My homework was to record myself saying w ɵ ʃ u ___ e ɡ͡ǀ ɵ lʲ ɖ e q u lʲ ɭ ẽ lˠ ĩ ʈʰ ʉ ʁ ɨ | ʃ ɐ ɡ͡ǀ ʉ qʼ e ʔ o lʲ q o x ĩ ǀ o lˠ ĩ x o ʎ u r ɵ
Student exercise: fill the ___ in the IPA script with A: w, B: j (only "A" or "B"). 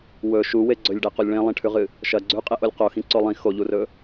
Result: A